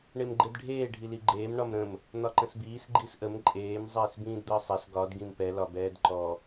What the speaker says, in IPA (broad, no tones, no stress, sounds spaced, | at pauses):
ɳ e m ɡ͡ǃ e d ɖʱ eː ɖʱ i l i ɡ͡ǃ eː m ɳ ɒ m ɾ ə̃ m | n̪ ɒ ǃ ə̃ s b iː s ɡ͡ǃ i s ʔ ə m ǃʼ eː m zˤ eː s b ĩː d d̪ əː sˤ ɛ s ɡ ɒ d ɡ ĩ m p ɛ l ɒ b ɛː d ǃ ɔ